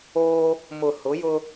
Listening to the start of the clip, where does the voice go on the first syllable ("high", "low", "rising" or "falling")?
high